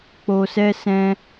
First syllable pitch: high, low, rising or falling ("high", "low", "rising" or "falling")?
low